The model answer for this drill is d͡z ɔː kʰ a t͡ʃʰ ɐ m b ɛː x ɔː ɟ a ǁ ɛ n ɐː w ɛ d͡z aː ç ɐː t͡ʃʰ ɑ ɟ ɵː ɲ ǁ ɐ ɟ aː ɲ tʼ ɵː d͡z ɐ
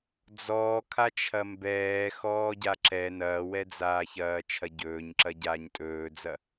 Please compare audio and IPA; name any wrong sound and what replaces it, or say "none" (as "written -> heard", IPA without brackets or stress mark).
ɑ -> ɐ